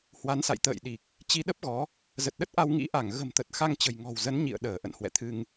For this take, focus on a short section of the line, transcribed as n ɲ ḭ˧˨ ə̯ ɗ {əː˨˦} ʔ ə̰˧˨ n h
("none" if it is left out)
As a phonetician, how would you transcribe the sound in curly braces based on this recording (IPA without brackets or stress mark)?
əː˧˩